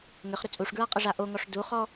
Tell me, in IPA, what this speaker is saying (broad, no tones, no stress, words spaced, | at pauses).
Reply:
ŋʏχɾʏ t͡sʼuʂɡɹaqʼɘʐa ʔoŋɔʂ duχɔ